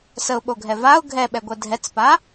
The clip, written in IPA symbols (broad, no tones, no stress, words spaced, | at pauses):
səʊ̯ɓoɡʱɛ vaʊ̯ ɡʱɛɓɛɡʷɛ dʱɛt͡spa